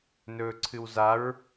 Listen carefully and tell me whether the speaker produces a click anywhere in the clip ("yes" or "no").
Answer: yes